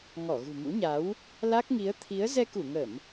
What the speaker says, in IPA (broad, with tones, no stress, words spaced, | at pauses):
ŋɔ˧˩ɣṳ˨˩mṵ˧˥ɲa˨˦w | la˦˥k̚ŋi˨˦ə̯ t̪ʰi˨˦ə̯ zɛ˧ku˧˩ŋə˧˩˨m